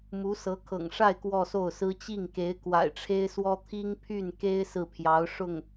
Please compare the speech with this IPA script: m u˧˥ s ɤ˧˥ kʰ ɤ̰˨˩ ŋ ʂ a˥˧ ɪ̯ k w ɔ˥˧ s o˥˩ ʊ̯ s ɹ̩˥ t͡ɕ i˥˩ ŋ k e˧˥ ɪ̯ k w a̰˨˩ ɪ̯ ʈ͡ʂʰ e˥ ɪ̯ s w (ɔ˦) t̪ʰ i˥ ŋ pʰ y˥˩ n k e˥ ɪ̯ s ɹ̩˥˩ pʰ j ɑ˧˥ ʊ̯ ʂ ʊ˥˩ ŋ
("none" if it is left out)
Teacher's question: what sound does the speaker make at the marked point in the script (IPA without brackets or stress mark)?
ɔ˥